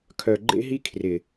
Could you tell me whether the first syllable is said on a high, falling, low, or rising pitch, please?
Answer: low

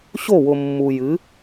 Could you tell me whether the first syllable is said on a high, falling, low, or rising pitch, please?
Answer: falling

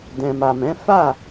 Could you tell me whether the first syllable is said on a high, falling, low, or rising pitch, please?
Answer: low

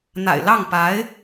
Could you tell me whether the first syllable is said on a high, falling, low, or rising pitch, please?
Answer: low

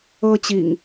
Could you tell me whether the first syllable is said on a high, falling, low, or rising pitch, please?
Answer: high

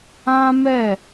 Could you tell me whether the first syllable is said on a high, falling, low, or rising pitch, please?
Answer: high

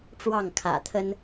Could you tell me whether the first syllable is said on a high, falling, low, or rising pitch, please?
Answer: falling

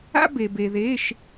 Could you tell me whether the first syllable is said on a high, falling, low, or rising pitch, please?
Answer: high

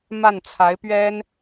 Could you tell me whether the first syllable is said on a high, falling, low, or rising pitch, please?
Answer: falling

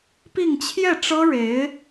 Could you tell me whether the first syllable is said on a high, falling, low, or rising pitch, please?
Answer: falling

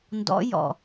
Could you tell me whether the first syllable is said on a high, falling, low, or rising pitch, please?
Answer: rising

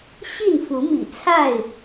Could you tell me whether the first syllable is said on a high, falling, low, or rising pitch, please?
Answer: falling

